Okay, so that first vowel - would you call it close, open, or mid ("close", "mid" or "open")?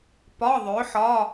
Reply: open